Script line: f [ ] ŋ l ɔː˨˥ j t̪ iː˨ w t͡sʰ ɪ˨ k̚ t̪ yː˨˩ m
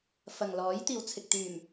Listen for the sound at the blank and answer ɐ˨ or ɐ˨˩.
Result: ɐ˨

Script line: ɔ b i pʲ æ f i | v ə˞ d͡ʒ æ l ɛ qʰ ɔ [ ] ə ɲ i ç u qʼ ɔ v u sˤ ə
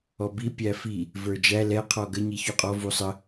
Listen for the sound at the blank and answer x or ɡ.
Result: ɡ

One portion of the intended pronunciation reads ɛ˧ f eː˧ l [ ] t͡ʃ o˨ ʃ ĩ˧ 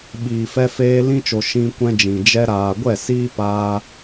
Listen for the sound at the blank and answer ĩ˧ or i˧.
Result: ĩ˧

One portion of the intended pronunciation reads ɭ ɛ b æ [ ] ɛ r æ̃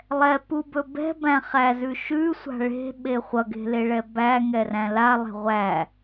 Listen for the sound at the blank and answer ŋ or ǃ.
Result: ŋ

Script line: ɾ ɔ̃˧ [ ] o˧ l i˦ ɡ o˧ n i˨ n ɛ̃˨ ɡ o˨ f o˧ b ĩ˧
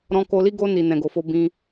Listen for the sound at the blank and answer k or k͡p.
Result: k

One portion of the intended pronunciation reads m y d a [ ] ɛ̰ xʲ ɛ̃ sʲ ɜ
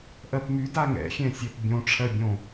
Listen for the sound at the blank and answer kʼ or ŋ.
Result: ŋ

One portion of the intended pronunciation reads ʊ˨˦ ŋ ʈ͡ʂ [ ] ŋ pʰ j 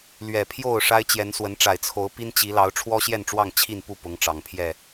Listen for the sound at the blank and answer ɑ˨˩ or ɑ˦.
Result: ɑ˨˩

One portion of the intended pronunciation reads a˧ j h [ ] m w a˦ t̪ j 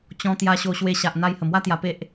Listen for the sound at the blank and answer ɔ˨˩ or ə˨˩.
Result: ə˨˩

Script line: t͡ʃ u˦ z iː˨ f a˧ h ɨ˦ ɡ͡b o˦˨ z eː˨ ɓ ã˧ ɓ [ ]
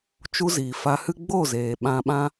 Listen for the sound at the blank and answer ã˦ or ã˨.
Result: ã˦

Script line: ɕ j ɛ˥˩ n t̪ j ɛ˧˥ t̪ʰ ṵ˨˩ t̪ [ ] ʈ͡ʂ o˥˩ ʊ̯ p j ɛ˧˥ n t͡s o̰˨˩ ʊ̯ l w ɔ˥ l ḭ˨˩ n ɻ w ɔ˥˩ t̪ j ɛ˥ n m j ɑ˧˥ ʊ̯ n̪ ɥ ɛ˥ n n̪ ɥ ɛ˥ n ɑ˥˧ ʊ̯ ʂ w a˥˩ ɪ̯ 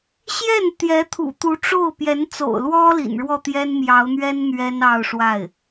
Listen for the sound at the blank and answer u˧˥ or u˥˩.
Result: u˧˥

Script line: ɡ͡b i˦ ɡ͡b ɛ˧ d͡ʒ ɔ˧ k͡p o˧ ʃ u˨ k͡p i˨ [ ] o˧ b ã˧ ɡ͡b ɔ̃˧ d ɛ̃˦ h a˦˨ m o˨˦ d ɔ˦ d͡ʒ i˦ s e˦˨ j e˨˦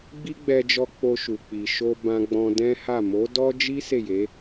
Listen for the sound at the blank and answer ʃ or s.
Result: ʃ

